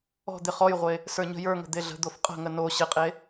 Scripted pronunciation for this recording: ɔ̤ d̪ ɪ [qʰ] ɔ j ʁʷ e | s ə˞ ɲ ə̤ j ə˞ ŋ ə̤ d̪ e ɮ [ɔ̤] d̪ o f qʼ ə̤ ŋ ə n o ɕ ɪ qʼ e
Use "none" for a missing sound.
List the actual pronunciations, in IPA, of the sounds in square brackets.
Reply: χ, ə̤

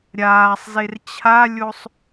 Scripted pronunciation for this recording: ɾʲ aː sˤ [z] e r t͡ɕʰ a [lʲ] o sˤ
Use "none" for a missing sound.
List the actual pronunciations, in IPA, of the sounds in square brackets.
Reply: z, lʲ

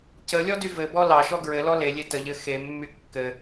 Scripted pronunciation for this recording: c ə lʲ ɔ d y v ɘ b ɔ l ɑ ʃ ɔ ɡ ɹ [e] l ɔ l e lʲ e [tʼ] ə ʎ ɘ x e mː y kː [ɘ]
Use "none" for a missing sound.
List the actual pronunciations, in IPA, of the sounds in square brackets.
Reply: ɘ, t, ɘ

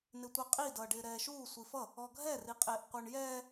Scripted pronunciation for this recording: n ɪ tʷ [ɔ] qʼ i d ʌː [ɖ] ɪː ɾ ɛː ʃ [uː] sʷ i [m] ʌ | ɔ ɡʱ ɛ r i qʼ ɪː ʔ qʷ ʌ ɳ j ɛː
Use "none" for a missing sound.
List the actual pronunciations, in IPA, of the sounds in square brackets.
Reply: ɑ, ɖ, uː, f

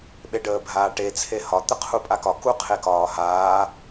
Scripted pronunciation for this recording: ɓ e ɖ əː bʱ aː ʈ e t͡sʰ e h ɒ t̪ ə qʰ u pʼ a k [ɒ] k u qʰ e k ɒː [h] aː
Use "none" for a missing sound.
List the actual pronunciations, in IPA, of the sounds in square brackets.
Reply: ɒ, h

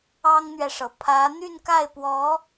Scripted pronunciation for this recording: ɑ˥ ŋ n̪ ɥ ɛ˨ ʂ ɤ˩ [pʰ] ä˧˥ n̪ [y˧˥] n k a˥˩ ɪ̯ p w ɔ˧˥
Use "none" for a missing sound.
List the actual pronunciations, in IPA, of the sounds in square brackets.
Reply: pʰ, y˥˧

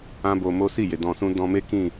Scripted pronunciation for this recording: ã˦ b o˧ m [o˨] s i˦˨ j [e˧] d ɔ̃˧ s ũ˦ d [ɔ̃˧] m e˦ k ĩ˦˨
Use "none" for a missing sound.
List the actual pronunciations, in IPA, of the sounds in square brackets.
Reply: o˦, e˨, ɔ̃˧

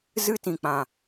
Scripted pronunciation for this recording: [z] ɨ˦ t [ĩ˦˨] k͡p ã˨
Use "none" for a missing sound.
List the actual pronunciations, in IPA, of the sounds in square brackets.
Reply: z, ĩ˨

